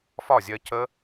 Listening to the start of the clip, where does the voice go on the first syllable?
falling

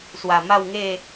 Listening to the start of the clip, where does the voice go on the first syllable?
low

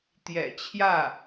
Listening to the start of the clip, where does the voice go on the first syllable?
low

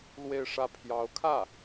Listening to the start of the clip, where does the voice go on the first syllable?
falling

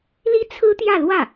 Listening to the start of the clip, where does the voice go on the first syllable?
high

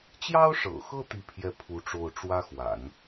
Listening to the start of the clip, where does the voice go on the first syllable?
high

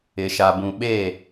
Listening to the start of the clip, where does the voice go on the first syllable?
low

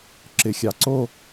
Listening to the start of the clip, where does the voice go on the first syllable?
low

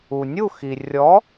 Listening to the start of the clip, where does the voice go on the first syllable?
low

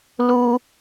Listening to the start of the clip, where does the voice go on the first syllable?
high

